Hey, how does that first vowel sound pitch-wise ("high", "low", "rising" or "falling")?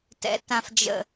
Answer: low